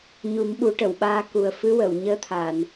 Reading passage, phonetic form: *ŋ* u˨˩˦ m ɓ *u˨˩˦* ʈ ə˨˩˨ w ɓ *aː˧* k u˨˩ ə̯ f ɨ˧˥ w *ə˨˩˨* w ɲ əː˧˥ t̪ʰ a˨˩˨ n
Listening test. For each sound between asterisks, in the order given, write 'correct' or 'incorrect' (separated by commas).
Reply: incorrect, correct, correct, correct